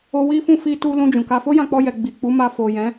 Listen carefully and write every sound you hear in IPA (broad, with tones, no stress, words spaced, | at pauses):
o˧wi˦fũ˦˨ fi˧tu˧lũ˧ d͡ʒũ˨ka˧ fo˦jã˧k͡pɔ˧jɛ˨ ɡ͡bi˨k͡pu˨˦ma˧ fo˨ jɛ̃˨˦